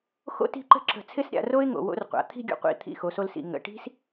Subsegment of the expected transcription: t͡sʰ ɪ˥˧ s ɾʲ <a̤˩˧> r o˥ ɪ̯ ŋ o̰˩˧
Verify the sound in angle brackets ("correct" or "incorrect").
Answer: incorrect